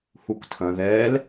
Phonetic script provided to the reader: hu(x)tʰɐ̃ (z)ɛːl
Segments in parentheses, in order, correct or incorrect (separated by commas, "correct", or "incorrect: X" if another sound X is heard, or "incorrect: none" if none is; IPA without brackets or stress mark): incorrect: k, incorrect: ð